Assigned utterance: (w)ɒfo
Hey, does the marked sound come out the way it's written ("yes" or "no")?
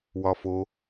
yes